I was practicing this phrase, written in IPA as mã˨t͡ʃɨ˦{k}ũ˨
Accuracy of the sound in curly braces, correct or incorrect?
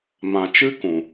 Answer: correct